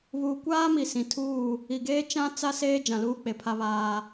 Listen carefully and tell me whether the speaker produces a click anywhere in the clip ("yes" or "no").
no